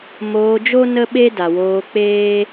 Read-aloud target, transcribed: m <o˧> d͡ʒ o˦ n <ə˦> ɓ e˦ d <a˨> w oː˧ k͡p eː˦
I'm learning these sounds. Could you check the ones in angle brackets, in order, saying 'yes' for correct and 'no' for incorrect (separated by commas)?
no, yes, yes